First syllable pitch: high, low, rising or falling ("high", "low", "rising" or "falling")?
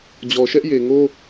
low